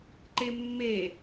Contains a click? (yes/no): yes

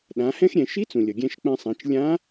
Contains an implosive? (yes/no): yes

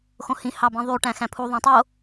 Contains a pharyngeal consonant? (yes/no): no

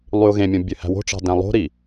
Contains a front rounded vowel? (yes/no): yes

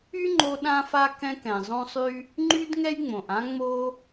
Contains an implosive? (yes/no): yes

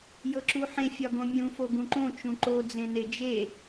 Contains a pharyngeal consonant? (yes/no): yes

